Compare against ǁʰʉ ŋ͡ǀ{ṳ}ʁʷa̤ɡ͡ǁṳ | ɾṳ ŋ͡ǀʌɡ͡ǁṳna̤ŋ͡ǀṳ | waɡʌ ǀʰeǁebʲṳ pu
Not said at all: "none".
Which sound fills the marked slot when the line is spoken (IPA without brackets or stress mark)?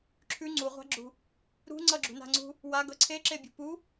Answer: u